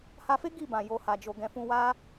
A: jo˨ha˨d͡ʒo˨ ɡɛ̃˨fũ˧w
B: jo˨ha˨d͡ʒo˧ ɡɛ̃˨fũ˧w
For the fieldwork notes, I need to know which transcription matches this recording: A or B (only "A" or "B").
A